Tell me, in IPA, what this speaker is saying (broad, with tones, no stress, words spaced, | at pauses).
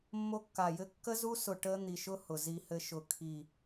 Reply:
mːo˦˥kːa˧˩jɘ˦˥ kːə˦˥zu˦˥sʊ˧˩ ʈə˦˥ n̪i˧˩ʃʊ˦˥ hʊ˧˩zi˦˥hɘ˦˥ ʃʊ˧˩ kʰi˧˩